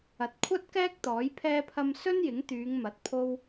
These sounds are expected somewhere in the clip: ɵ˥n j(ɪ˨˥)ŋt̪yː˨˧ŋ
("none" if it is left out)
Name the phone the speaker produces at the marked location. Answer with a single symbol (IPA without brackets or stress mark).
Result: ɪ˨˥